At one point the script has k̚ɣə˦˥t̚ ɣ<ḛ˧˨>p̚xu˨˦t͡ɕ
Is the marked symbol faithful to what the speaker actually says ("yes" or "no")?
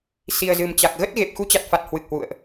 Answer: no